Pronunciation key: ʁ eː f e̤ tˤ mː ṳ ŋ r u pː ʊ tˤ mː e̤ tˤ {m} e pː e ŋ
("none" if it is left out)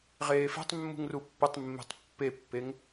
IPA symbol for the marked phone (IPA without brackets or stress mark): pː